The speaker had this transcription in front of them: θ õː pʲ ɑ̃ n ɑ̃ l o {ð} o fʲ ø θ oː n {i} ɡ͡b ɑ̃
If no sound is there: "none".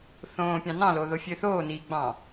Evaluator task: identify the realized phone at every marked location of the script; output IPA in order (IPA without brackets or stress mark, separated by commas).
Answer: ð, iː